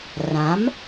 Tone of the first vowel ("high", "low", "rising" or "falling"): rising